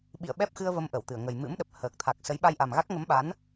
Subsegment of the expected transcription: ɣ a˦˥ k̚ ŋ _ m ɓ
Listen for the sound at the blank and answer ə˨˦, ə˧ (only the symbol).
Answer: ə˨˦